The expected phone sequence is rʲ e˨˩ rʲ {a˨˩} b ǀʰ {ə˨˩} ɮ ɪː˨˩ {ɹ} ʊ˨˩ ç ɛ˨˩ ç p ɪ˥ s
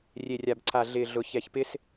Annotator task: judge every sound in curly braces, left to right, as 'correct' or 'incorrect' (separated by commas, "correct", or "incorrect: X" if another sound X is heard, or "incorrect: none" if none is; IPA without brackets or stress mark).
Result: correct, incorrect: a˨˩, incorrect: ɮ